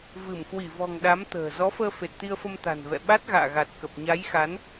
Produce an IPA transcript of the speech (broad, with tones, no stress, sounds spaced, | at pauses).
v ɨ˧˩ m k w i˧˩ v ɔ̤˨˩ ŋ ɗ a˨˦ m t̪ ə̤ː˨˩ z ɔ˨˦ f əː˧ f e˨˩ t̚ t̪ i˧ ə̯ f ə˧ m t̪ a̤˨˩ n v ɛ̰˧˨ ɓ a˦˥ t̚ ɣ a̰ː˧˨ ɣ a˨˩ t̚ k ə˨˩ p̚ ɲ a˨˦ j x a˨˦ n